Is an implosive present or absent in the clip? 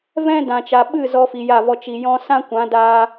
present